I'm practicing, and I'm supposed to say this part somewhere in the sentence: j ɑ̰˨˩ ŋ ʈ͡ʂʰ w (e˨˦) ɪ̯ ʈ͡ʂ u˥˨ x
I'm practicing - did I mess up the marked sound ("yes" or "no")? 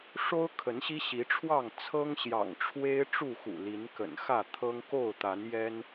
yes